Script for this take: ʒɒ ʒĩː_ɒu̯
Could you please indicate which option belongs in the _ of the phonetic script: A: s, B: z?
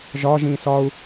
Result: A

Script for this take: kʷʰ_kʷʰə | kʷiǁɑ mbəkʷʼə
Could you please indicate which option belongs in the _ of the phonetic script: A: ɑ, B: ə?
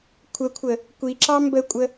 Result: B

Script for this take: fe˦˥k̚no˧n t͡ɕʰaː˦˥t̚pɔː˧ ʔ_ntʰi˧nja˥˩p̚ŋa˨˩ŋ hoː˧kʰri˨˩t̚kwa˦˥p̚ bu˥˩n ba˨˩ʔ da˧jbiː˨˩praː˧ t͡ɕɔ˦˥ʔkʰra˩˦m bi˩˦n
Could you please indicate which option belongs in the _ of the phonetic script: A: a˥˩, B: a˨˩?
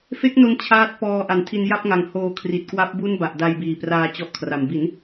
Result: B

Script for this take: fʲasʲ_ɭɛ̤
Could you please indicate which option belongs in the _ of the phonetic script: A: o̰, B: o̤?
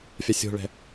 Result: B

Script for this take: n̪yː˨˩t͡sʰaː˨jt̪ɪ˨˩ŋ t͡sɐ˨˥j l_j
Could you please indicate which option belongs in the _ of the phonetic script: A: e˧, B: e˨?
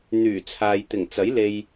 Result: A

